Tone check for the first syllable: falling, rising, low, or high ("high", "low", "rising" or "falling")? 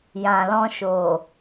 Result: low